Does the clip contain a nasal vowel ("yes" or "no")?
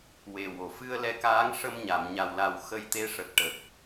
no